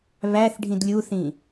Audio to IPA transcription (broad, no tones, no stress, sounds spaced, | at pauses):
β æ θ ɖʱ ĩ d lʲ u θ ĩ